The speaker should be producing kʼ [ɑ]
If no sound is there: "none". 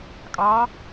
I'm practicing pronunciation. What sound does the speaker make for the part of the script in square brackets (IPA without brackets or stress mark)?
ɑ